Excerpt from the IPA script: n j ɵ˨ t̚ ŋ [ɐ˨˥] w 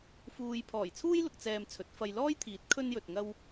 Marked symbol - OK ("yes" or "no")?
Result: no